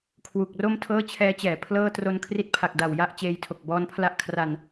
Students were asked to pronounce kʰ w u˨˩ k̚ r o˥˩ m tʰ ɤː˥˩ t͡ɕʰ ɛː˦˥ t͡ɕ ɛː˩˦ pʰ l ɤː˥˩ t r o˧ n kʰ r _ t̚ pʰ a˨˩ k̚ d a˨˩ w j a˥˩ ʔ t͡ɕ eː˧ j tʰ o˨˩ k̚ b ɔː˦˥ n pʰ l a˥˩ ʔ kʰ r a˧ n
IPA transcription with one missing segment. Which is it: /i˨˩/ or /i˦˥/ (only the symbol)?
i˦˥